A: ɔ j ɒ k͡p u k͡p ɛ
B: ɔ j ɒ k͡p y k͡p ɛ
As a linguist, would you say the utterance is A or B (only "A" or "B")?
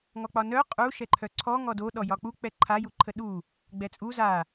A